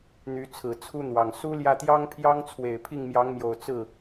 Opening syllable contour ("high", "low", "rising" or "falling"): rising